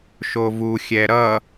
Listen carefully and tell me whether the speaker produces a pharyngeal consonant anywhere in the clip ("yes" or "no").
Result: no